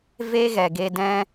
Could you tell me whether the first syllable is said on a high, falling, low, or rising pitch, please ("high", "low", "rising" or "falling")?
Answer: high